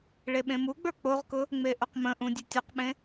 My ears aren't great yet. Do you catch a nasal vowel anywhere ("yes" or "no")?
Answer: yes